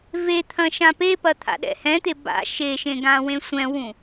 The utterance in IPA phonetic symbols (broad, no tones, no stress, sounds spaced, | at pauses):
v e t̪ʰ ɐ̃ ʃ ã p e p ɐ t̪ʰ a̰ ɗ ɛ̰ h ɛ̃ t̪ e b a̰ ʃ e ʃ ẽ ɡ ã w ẽ sʷ ɛ̃ w ũ